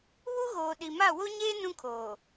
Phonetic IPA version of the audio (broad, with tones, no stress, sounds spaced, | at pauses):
β u˦ ɣ oː˨ ɗ i˨ m a˦˨ w o˦ ɲ eː˦ n ũ˦ kʰ oː˨